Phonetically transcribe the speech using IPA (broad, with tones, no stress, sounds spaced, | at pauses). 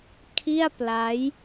kʰ i˥˩ a̯ p l a˦˥ j